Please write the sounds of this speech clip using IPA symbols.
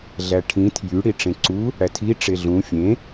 ɮ æ ʈʰ ĩ tʰ j y ɽ i ʈ͡ʂ ẽ ǀ u | ɽ æ tʰ i ʈ͡ʂ e ɮ ũ fʲ ẽ

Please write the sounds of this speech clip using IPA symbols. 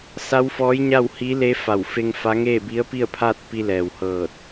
s a˧˥ w f ɔː˧˥ j ɲ a˥˨ w h i˧˥ l e˧˥ f a˧˩ w f e˧ ŋ f a˧˥ ŋ eː˥˨ b i˧˥ ə̯ p i˥˨ ə̯ pʰ aː˥˨ t̚ p i˧ l ɛː˩ w h ɤː˧˩ t̚

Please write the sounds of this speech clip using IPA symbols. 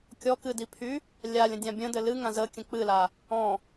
kʲ ɔ k ɨ d i pʰ y | lʲ a lʲ ə̃ dʲ ã bʲ ə̃ d ɘ l ɨ ŋ ã z ə kʲ ə̃ k͡p ɨ l a | ɔ̃

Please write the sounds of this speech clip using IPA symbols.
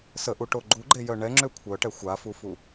s ə ʔ u ʈ o ɡ͡ǃ u ɡ͡ǃ e j œ ɳ ɛ ŋ͡ǁ ø kʷʰ œ ʈ ɛ xʷ a f u f u

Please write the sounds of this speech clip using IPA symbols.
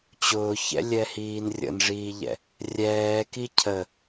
t͡ɕ ʊː ç ɛ̰ lʲ ɛ h iː n rʲ ə̰ n ʐ iː ʎ ɛ̰ | rʲ ɛː k i cʰ ə

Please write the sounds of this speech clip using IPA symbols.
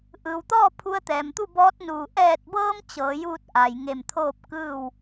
ʔ ɯː˩ w t̪ ɔː˥˨ pʰ u˧ ə̯ t̪ ɛː˩ m t̪ u˥˨ b ɔː˧˥ t̚ n uː˧˩ ʔ ɛː˧˩ t̚ b ɤː˧ m t͡ɕ ɤː˩˧ j uː˥˨ t̚ ʔ a˩ j ŋ e˧˩ m t̪ʰ oː˥˨ p̚ k ɯː˥˨ w

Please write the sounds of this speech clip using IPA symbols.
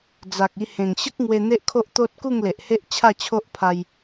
d͡z a˨ k̚ i˧ h ẽ˨˩ ŋ ɕ ə˦ k̚ ŋ w e˧ n̪ e˦ ʔ kʰ o˦ ʔ t̪ o˦ t̚ k u˥˧ ŋ l e˨ ʔ h e˦ ʔ t͡ɕʰ a˥˧ t͡ɕʰ o˦ ʔ pʰ a˧ j

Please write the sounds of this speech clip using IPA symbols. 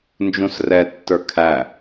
n d͡ʒ ũ s r ɛ tː ə˞ kʰ æ

